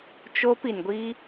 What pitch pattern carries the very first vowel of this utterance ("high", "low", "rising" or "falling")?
high